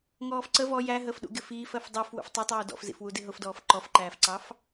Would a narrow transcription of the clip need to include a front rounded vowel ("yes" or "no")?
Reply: no